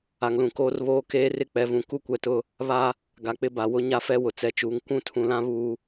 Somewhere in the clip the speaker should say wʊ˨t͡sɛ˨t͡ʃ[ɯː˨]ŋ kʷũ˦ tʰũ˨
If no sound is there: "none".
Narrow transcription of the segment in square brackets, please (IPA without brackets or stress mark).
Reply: uː˨